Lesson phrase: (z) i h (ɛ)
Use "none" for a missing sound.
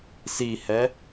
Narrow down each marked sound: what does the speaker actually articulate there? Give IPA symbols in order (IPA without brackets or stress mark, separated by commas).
s, ɛ